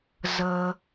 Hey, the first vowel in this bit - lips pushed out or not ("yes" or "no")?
no